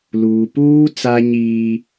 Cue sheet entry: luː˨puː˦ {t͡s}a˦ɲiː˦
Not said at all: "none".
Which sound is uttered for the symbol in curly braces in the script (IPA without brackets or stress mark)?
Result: t͡s